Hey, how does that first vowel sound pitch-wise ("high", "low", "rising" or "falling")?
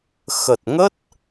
low